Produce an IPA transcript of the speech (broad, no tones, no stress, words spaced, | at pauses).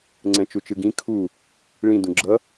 ŋ͡ǀɛ̃t͡ʃut͡ʃɯɡĩ kʰu | ɭĩ dũɡ͡ǁʌ